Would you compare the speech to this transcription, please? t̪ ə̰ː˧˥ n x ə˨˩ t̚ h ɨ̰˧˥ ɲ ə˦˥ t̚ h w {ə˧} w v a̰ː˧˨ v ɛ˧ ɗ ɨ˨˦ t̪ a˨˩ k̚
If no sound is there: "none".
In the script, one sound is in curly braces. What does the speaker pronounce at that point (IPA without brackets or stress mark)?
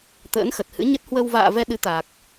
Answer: ə˧